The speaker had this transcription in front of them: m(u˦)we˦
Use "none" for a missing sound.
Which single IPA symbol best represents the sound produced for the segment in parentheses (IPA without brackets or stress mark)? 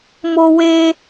o˦